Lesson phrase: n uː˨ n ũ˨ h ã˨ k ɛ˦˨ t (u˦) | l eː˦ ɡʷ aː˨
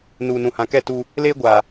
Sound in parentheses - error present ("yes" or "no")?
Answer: no